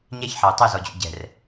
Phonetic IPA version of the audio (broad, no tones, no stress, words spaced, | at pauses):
ɲɛçħɑu̯ tˤʉzɔd͡ʑṵ ɟɛ̤r